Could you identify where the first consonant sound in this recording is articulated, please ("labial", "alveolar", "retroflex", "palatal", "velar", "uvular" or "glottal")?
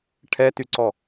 retroflex